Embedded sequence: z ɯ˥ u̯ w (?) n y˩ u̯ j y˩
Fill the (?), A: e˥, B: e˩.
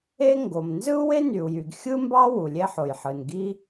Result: A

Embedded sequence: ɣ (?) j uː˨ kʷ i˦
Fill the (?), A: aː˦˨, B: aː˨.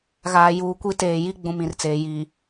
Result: B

